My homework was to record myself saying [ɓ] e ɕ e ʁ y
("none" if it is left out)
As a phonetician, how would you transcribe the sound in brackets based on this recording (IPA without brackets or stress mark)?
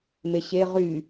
m